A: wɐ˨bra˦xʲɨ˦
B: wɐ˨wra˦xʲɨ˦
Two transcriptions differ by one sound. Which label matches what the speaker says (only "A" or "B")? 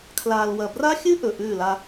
A